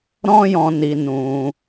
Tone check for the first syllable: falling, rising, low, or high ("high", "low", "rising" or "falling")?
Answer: high